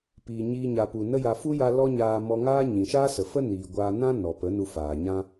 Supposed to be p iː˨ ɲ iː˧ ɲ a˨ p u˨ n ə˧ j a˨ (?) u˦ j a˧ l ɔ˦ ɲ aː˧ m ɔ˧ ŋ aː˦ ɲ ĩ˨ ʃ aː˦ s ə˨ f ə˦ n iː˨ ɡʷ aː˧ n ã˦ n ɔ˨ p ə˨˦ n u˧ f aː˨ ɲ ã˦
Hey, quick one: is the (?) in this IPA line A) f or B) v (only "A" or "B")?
A